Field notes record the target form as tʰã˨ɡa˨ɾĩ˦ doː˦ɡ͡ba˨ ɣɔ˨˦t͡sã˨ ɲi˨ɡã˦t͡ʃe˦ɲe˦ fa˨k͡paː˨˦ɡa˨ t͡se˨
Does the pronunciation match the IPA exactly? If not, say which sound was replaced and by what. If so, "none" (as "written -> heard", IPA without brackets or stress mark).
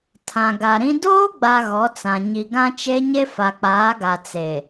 none